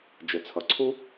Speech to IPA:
d͡ʒ ɘ˩ t͡sʰ ʌ˩ ǀʰ u˥

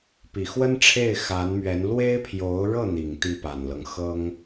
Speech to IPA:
p i˨˩ x w ə˥ n ʈ͡ʂʰ e˥˩ ɪ̯ x a˧˥ n m ɥ ɛ˧˥ n l w e˥ ɪ̯ pʰ j o˧˥ ʊ̯ ɻ ɤ˥˩ n̪ i˨˩ ŋ t̪ i˥˩ p a˨˩ n l ɤ˦ ŋ x ɤ˥ ŋ

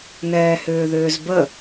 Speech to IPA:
n ɛː h ʏː ð ʏː z b ə

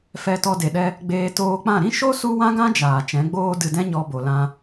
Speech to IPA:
f ɛ˧ t ɔ˧ d e˨ ɗ ɛ˧ | ɡ͡b eː˧ t oː˧ k͡p ã˦˨ ɾ ĩ˦ ʃ o˦ s u˦ w ã˦ ɡ ã˦ d͡ʒ aː˨ t͡ʃ ɛ̃˨˦ ɡ͡b oː˦ d ɨ˧ d ɛ̃˦ ɲ ɔ˧ b o˨ l ã˧

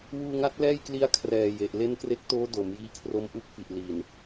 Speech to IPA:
w uː˧ ŋ a˦˥ t̚ l ɛː˥˩ j k l i˦˥ a̯ kʰ r ɛː˨˩ j e˨˩ ʔ l e˦˥ n k r e˦˥ k̚ t oː˦˥ d o˩˦ m j iː˦˥ kʰ r o˦˥ m ʔ u˦˥ k̚ f i˨˩ ʔ l iː˨˩ n

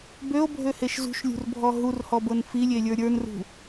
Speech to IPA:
b ø o̯ bʱ ø h e ʃ z ṳ ʃ lʲ ṳ r bʱ ɔ ɦ u r h ɔ b ɤ n f i lʲ e lʲ ə˞ ɾʲ ə˞ n r ṳ

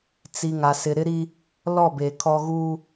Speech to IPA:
t͡s i˨ ŋ a˨ s ɪ˨ ɾ ɪ˦ ɾ i˦ | l ɔ˦˨ b e˨ kʰ ɔ˦ ɣ uː˦

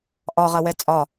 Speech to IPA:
ʔ ɒ ʁ ɐ w ɛ t͡sʼ ɒ

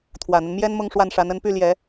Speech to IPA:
t̪ʰ w ä˨˩ n̪ ə˦ n m j ɛ˥ n m ʊ˥˧ ŋ ʂ w a˥˩ n ʂ a˧˥ n ə˧˥ n p y˥˩ l j ɛ˨˩˦

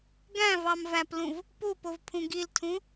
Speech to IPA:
ɡ æ̃ v ɑ m v æ p l ũ v | p u p o v pʰ ũ ɡ i l tʰ ũ

